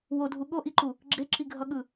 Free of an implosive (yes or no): no